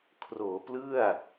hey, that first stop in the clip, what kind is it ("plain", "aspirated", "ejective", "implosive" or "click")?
aspirated